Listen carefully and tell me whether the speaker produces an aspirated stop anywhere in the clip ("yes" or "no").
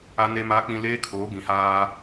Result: yes